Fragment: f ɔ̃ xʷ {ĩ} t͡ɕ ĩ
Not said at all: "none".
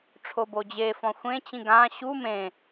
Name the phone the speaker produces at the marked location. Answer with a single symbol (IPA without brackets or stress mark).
ẽ